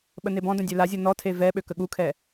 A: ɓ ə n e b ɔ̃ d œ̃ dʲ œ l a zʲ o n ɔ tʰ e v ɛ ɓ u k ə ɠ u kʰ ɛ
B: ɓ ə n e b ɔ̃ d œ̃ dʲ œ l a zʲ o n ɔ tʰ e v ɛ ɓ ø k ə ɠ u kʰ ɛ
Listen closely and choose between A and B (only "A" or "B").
B